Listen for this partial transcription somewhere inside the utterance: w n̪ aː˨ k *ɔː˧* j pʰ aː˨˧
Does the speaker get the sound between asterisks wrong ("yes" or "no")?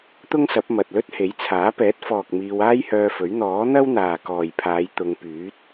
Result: yes